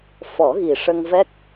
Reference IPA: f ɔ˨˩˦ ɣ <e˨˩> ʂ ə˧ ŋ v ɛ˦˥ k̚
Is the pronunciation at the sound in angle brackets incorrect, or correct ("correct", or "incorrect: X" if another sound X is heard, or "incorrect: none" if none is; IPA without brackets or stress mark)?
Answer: incorrect: i˨˩